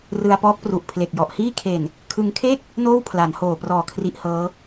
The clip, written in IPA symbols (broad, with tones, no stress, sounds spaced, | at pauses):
r ɯ˧ a̯ p ɔː˦˥ k̚ p r u˨˩ ʔ pʰ l e˨˩ k̚ j ɔ˨˩ ʔ h iː˥˩ kʰ e˨˩ n | kʰ ɯ˧ ŋ kʰ e˥˩ k̚ | n oː˥˩ w pʰ l a˩˦ n h oː˨˩ p r ɔː˨˩ kʰ r i˦˥ ʔ h ɤː˦˥